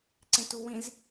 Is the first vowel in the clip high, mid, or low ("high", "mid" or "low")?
mid